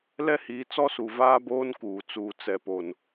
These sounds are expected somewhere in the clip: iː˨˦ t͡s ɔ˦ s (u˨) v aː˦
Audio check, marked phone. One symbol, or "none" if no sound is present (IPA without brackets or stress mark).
u˨